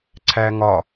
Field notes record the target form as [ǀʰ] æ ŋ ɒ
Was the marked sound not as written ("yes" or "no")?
no